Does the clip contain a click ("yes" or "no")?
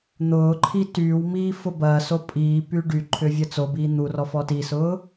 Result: yes